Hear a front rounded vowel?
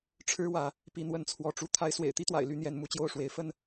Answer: yes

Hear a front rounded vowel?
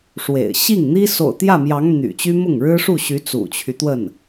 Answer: yes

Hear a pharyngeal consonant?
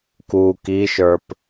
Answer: no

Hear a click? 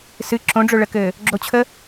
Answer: yes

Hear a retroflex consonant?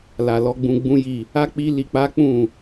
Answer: no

